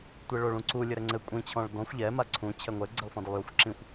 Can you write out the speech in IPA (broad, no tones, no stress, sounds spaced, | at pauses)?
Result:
tʷ e ɭ o ɭ ũ ǀ u lʲ ɘ ɾ ɛ ŋ͡ǀ ɘ kʷʼ ĩ t͡ɕʰ ɔ̃ ɭ d ɔ̃ xʷ ʎ ɛ m a ǀʰ ũ t͡ɕʰ ɛ ŋʷ ɛ ɡ͡ǀ ɘ lˠ f ɔ̃ d ɘ lˠ j o xʷ ǁ ĩ xʷ